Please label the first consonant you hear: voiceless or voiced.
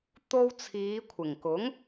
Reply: voiceless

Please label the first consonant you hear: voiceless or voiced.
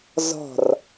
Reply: voiced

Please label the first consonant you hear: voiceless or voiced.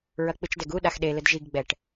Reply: voiced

